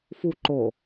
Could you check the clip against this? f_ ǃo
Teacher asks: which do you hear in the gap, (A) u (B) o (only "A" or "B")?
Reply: A